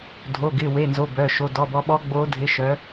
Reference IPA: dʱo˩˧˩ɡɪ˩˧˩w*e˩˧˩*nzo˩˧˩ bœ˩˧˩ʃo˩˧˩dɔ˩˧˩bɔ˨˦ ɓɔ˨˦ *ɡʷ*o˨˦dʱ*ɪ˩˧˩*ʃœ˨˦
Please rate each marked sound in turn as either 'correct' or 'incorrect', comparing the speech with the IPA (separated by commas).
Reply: correct, incorrect, incorrect